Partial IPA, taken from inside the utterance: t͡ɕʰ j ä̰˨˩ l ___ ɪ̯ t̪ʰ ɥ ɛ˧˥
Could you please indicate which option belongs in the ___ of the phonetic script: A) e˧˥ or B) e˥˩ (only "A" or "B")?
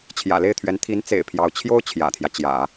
B